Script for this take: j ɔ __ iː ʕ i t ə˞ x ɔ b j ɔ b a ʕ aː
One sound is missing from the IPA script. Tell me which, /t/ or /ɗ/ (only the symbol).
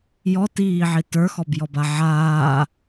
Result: t